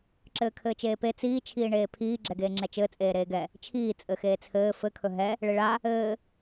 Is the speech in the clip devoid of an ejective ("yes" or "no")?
no